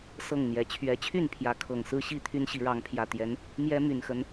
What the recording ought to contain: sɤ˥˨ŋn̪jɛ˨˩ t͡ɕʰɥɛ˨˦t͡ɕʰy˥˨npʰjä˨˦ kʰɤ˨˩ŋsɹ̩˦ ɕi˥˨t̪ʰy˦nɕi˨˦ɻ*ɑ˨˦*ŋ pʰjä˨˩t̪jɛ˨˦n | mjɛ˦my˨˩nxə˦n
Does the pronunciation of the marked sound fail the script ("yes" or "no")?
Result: no